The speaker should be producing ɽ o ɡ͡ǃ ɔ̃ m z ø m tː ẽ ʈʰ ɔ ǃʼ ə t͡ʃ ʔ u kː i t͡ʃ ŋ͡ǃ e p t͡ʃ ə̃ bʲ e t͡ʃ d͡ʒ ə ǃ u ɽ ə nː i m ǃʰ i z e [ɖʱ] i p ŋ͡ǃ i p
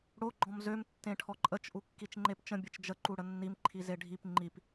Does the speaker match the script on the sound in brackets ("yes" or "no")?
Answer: yes